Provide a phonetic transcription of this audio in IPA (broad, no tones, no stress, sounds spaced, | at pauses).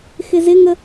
x ɪ z ɪ ŋ ə